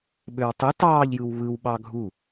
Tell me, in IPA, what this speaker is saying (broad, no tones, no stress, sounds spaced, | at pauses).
ɓ ø w tˤ ɯ t ɑː ʎ j ɯ w β ɯ w ɓ ɑ ɡʱ u